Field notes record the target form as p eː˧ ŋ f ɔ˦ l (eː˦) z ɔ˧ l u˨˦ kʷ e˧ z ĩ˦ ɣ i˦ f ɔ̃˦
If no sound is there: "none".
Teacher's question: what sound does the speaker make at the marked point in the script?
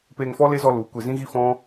e˦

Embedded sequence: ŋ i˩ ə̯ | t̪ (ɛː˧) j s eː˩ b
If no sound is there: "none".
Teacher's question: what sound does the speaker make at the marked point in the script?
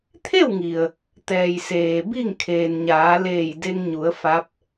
ɛː˩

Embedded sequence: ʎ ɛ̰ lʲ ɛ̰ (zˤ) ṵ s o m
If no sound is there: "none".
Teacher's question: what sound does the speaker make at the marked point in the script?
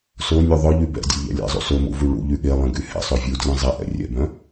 zˤ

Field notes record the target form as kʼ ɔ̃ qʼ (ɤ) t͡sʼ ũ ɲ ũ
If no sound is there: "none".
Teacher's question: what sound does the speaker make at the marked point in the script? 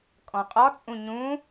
ɔ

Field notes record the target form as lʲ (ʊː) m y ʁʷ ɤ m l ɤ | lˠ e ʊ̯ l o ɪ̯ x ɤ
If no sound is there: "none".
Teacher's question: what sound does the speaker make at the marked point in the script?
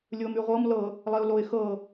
ʊː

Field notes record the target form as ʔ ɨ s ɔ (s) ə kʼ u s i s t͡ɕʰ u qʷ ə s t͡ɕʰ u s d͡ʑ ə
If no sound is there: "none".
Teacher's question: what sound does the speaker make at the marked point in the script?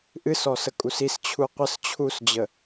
s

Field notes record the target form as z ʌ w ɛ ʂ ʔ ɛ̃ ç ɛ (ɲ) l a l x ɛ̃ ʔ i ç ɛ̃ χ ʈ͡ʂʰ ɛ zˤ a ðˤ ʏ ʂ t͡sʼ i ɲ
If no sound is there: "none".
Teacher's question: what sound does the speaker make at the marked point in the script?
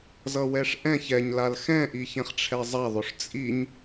ɲ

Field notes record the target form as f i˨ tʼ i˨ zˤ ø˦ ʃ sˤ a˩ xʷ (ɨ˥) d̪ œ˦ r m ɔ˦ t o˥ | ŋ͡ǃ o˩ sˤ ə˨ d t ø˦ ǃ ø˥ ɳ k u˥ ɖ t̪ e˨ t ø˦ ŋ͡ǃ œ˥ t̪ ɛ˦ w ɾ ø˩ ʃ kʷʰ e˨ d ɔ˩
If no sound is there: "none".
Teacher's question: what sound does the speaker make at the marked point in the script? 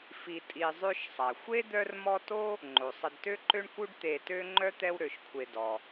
e˥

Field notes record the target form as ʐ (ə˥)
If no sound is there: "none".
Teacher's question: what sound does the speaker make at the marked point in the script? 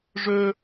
ɵ˥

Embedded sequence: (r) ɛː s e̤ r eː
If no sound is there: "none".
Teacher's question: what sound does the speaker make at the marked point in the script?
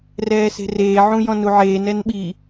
r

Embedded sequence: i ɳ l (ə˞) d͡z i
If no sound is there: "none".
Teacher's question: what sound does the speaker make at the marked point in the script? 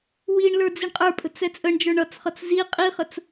ə˞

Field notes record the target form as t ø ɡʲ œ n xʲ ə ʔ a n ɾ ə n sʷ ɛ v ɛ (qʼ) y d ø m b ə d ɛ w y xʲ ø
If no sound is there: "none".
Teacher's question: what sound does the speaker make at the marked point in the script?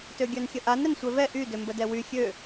ʔ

